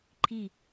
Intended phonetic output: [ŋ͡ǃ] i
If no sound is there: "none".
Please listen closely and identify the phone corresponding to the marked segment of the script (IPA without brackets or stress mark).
ǃʰ